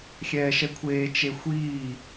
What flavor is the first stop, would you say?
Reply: aspirated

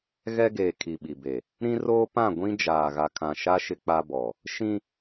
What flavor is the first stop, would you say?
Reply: plain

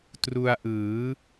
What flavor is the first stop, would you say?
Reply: plain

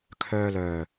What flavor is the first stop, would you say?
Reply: aspirated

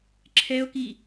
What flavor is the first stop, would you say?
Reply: click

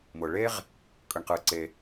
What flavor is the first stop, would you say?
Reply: ejective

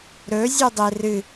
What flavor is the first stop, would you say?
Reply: plain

